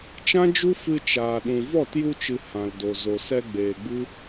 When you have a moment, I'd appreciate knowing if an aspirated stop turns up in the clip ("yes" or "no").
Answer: no